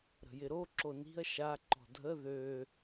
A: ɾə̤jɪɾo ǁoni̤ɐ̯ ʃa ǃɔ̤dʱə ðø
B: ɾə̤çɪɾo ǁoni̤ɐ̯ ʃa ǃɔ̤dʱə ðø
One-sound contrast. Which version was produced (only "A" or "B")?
A